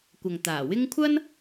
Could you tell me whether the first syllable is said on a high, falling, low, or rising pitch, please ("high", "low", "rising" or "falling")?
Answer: low